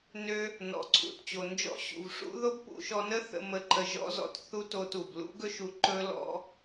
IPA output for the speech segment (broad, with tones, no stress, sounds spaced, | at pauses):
n ø˧ | n ɔ̰˩ ǀʰ ṵ˩ t t͡ɕ o˩ n d͡ʒ ɔ̰˥ ɕ ṵ˩ v ʂ ṵ˥ ð o˥ b p ṵ˧ ʃ ɔ˧ n ə˥ θ ə̰˧ m ə˧ ǃ ə˧ ʒ ɔ̰˥ z ɔ̰˧ t θ u˥ t o˧ t u˩ b l ṵ˥ ɡ ɵ˥ ʃ u˧ ǃ ɵ˥ l ɔ̰˥